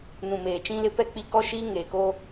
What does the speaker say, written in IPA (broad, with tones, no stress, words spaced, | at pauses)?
nũ˨meː˨t͡ʃĩ˦lɪ˦ pɛ˦˨k͡pi˦ kɔ˦ʃiː˦ ŋeː˨ko˦